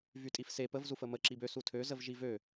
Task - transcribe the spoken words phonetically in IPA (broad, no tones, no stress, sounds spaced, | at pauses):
v y tʼ i f s e p ə v z u f ə m ə ǁ i b ø s u tʰ ø z ə v ʒ i v ø